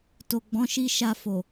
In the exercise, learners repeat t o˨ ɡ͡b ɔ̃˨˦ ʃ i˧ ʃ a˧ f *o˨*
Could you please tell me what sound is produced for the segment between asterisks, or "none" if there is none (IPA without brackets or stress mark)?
o˨